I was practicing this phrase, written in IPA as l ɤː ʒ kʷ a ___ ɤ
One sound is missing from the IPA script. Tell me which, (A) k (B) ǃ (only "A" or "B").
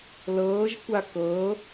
A